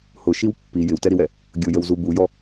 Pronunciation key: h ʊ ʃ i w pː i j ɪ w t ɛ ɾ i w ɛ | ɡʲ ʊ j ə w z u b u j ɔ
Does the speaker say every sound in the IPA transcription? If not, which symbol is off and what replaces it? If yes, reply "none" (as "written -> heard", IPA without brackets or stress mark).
none